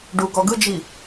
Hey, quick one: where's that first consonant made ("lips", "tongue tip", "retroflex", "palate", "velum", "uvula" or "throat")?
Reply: retroflex